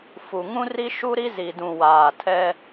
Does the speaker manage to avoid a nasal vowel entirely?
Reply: no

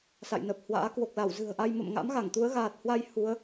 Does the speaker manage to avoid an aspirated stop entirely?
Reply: yes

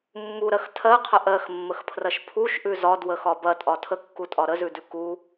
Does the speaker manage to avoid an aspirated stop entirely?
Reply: no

